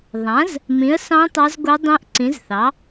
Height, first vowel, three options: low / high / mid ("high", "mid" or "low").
low